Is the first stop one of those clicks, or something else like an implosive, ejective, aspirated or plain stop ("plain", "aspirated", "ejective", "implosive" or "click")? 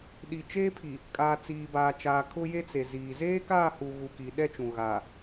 implosive